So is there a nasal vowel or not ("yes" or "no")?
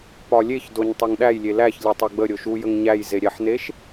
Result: no